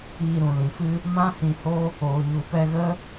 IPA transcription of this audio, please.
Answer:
iː˧ ɾ ũ˨ l ĩ˨ f ɨ˦ | m ã˦ h ĩ˧ h o˦ | oː˨ ɲ u˨ p ɛ˧ ɣ ə˦

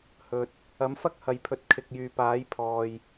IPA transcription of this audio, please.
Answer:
h ɵ˨ t̚ | ɐ˨˥ m f ɐ˥ k̚ h ɐ˨ j pʰ ɵ˨ t̚ kʰ ɪ˨ k̚ j yː˨ p aː˨˥ j pʰ ɔː˨ j

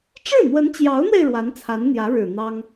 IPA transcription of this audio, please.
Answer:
ʈ͡ʂ ɻ̩˥˩ n̪ w ə˧˥ n t͡ɕ j ɑ˧˥ ʊ̯ n̪ w e˧ ɪ̯ ɻ w a˧˥ n t͡sʰ a˧˥ n n̪ j ä˧˥ ɻ ɻ̩˨˩ n̪ ɑ˥ ŋ

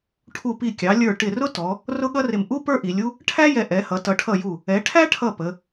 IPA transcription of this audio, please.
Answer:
ʈʰ u˧˩ p i˧˩ kʲ ɑ˩˧ lʲ ə˞˧˩ ʈ ɪ˧˩ r ʊ˥ t ɔ˩˧ | r ʊ˥ ɠ ʌ˥ r ɪ˧˩ m ʔ u˥ p ə˞˥ ʔ i˩˧ lʲ u˥ | ʈʰ æ˥ j ɛ˧˩ ʔ ɛ˩˧ h ʌ˩˧ t ʌ˩˧ ʈʰ ʌ˧˩ j u˧˩ | ɛ˩˧ ʈʰ æ˥ ʈʰ ʌ˧˩ p ə˩˧

